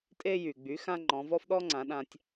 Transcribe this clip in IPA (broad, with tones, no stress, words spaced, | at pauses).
tʼe˧jy˩ɡ͡by˩˧ xã˥ŋ͡ǃɔ̃˩˧vɔ˥f ɗɔ˥ŋ͡ǀã˩˧ ɗã˧tʲ